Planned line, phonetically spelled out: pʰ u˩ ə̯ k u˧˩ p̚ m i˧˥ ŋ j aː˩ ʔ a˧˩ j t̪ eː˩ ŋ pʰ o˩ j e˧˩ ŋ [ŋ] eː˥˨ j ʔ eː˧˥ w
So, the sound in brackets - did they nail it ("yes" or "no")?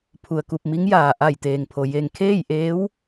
no